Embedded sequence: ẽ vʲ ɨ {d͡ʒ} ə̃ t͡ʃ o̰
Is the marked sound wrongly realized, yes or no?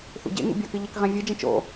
no